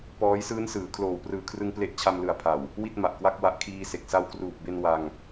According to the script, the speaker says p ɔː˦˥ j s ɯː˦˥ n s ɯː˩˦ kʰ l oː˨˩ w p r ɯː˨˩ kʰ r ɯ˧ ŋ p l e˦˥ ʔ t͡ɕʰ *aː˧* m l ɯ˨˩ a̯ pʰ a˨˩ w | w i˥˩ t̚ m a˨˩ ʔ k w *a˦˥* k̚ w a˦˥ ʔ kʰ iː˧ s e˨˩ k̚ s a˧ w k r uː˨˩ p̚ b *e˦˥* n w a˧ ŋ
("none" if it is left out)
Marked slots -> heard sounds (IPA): a˧, a˥˩, e˧

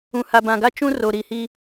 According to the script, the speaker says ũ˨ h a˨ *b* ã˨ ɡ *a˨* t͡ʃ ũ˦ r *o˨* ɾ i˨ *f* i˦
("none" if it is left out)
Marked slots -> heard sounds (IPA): b, a˦, o˨, h

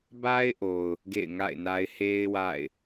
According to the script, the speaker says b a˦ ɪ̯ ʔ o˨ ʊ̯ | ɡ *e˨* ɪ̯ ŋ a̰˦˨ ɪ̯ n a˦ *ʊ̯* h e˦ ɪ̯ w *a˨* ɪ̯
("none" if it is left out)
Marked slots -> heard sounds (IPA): ḛ˦˨, ɪ̯, a̰˦˨

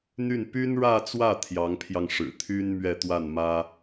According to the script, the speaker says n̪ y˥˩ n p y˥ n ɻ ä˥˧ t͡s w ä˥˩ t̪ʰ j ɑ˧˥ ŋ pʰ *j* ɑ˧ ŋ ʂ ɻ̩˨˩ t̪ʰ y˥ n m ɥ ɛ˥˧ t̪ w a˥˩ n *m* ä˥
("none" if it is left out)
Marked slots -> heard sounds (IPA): j, m

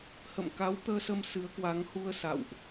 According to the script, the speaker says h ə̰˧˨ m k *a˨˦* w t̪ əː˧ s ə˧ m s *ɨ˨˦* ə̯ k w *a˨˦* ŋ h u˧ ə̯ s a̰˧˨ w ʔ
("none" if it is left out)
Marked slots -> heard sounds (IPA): a˨˦, ɨ˨˦, a˨˦

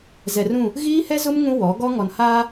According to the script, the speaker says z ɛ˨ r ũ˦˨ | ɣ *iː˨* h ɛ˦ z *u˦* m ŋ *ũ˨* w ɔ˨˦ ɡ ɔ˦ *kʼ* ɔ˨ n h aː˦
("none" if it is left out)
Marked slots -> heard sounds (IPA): iː˦, ʊ˦, ũ˦, ŋ

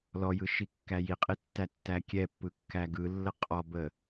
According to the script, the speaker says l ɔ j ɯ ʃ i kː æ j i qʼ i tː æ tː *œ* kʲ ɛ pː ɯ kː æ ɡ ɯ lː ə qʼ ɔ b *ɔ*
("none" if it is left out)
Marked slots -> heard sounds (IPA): æ, ə

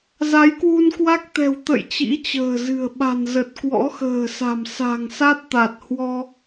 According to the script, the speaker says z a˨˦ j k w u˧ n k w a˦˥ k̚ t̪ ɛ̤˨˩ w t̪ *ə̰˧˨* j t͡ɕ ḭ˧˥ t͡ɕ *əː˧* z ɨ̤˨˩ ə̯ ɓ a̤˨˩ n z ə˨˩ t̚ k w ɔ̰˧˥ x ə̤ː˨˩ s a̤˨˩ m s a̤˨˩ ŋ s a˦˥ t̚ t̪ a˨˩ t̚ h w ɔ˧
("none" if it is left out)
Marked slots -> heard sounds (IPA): ə̰˧˨, ə̤ː˨˩

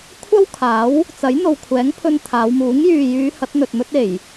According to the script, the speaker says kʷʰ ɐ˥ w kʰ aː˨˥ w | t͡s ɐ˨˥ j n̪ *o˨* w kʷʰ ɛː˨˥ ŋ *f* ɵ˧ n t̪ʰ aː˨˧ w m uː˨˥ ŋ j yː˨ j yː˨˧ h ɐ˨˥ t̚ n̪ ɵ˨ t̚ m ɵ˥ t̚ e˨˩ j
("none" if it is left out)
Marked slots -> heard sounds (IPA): o˨, pʰ

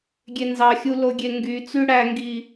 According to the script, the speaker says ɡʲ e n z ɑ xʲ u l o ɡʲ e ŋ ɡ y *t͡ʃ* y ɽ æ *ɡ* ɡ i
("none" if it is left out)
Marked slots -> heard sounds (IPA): t͡s, ŋ

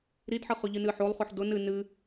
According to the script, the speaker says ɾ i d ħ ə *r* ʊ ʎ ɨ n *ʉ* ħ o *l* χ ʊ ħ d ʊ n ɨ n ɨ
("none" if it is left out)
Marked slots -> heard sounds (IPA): χ, ɨ, lˠ

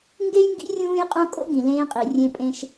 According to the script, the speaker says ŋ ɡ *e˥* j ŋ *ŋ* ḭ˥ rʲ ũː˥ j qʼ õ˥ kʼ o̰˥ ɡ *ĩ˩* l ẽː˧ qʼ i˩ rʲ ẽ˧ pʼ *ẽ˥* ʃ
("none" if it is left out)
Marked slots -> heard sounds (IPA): e˥, ɡ, ĩ˩, ẽ˧

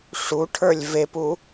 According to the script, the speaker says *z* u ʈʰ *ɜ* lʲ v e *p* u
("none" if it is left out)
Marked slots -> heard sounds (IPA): ʂ, ə˞, p

